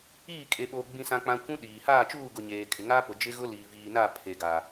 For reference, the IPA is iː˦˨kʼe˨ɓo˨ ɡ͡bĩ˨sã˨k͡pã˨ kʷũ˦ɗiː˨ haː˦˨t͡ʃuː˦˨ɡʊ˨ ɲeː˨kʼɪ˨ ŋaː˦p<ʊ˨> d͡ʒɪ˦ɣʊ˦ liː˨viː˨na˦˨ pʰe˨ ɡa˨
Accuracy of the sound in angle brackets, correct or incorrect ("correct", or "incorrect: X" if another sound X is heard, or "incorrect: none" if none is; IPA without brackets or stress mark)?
correct